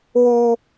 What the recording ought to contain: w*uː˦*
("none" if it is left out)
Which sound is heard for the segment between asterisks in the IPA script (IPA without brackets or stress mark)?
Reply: uː˦